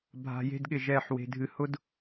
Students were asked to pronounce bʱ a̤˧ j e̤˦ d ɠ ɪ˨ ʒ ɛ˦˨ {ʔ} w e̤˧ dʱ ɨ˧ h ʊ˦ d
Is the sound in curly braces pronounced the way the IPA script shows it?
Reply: no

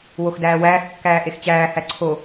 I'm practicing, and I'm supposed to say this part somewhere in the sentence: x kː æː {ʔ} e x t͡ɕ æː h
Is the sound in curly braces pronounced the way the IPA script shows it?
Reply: yes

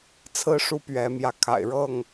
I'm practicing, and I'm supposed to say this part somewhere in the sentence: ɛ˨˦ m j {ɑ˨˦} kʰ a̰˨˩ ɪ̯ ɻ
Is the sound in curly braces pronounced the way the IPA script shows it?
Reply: no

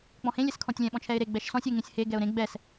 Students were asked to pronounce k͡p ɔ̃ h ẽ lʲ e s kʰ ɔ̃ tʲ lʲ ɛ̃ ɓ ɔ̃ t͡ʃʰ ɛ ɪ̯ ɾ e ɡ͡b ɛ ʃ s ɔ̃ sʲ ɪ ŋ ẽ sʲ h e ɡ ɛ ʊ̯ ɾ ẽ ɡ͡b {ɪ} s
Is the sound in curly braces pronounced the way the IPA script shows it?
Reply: no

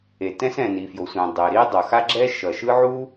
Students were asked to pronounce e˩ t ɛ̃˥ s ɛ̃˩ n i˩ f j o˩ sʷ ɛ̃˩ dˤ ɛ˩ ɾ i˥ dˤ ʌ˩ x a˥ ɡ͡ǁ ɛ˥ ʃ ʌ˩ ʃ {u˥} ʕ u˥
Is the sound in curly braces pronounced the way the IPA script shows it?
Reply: no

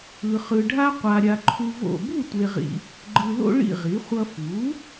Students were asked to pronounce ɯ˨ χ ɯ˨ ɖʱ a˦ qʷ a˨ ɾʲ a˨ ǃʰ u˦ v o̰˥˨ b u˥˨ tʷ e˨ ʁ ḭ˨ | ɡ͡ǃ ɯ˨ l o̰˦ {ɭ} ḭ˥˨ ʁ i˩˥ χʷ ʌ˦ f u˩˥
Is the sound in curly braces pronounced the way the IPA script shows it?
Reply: yes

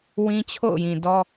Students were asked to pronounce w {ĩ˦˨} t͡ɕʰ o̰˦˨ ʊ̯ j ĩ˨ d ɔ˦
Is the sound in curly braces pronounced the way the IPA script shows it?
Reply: no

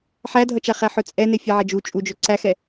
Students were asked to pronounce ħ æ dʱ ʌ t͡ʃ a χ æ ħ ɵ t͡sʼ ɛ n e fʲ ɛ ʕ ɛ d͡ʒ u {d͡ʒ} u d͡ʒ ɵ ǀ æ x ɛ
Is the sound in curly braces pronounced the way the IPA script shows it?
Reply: no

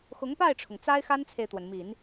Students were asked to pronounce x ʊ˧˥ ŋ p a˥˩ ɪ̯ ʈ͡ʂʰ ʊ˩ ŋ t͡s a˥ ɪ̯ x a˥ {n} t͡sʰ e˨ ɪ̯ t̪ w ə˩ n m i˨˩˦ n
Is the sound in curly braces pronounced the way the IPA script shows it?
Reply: yes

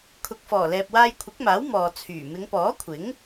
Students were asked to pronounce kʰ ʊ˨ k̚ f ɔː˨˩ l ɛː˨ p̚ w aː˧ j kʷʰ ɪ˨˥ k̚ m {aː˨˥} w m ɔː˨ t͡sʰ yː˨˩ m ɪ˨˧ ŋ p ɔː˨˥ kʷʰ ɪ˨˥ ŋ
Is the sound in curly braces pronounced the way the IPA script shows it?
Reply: yes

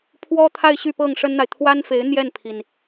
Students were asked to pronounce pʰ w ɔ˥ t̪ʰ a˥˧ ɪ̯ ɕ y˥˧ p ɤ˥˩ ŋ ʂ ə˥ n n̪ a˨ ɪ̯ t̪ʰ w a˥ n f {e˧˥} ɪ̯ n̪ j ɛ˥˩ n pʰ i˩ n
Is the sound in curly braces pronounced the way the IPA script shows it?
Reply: yes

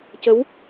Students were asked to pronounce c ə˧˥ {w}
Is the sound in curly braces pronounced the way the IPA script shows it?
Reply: yes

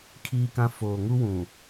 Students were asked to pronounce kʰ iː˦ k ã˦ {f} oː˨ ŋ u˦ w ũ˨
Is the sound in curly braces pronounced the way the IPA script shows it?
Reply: yes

